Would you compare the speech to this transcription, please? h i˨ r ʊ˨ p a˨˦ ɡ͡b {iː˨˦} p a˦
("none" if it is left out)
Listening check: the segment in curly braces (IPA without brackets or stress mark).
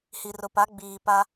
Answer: iː˨